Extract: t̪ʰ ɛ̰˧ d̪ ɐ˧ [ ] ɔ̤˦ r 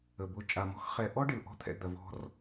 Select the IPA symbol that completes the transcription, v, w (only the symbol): v